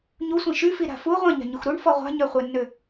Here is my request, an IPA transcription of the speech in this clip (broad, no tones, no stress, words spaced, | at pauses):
ɲusʷĩ ʃyfiɾa̤ fu ʁʷɛ̃ɲa̤ɲux ɾuɳfɔ ʁʷa̤ɲœχʷɛnːø